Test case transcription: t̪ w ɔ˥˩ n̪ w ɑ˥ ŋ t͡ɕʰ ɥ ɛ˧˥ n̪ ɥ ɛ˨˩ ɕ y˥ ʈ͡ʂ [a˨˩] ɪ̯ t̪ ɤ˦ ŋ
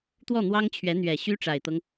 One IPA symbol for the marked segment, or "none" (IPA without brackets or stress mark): a˨˩